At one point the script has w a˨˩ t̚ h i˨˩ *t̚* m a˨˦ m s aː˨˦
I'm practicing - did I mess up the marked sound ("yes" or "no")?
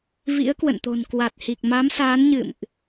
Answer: yes